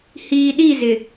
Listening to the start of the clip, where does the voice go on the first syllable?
low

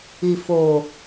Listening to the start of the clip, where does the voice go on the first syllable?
low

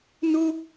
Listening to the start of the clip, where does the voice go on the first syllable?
high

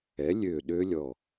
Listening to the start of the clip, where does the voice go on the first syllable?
rising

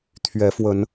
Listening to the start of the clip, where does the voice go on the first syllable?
rising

